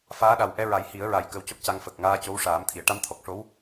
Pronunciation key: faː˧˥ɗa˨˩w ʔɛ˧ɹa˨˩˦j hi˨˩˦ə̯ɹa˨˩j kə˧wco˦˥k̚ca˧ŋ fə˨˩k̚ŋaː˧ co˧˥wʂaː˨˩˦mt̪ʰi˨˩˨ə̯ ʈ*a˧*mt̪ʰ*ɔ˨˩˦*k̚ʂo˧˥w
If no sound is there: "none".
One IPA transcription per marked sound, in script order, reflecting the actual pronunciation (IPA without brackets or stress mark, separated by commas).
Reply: a˧˥, ɔ˨˩